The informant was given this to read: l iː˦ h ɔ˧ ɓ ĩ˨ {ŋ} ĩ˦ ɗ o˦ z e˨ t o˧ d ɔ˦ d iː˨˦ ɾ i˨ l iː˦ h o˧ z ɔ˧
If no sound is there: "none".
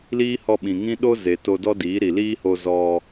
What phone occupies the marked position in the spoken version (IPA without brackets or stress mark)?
ŋ